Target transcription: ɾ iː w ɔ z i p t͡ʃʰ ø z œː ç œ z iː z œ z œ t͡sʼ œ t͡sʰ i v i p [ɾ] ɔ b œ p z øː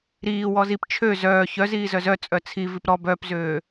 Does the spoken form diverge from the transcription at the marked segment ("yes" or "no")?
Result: no